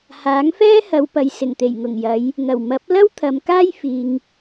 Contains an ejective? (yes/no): no